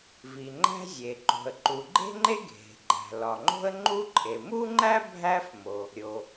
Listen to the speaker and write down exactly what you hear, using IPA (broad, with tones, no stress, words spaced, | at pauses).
vi˩ŋ͡ǃæ̤˥ zʲe˩ ǃo̤˩ə̯ǃu˩ ɡ͡ǃe̤˥ŋ͡ǃe˥ ɡʱe̤˩ɡ͡ǃæ̤˩ lɒ˩ŋ͡ǃo̤˥ə̯ŋ͡ǃu˥ǃʼe˩ mu˥ŋ͡ǃæ˥ bʱæ˥fmo˩ | ɾʲo˩